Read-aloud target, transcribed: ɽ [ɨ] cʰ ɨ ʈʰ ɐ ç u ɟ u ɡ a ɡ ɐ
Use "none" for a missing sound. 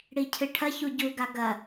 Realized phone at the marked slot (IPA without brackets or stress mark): i